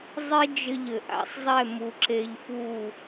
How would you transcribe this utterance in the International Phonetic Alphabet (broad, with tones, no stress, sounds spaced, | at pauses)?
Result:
zˤ i˦ d͡ʒ ɘ˧ ʎ ɘ˨ ʔ a̰˧ sˤ zˤ ɛ˦˨ m u˨˦ ǁ e˧ ʎ f u˦˨